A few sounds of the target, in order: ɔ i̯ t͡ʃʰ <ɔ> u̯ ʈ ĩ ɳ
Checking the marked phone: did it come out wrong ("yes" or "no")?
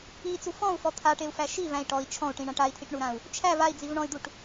yes